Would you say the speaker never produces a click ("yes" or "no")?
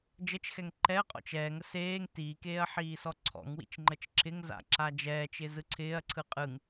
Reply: no